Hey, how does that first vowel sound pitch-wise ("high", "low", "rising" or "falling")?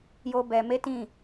high